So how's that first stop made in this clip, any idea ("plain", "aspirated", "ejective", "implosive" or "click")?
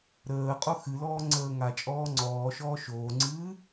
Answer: ejective